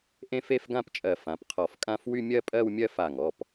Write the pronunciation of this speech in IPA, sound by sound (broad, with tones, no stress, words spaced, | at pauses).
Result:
ʔẽ˥˧fe˥˧fɡã˥˧pt͡ʃʼɜ˧˩ fã˩˧˩pqʰɔ˧˩fkʼã˥˧f wy˥˧mʲɜ˥˧pʼɜ˥˧wmʲɜ˥˧ fa˧˩ŋɔ˩˧˩p